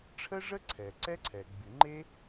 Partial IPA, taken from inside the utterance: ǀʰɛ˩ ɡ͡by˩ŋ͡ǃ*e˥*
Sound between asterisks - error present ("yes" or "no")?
no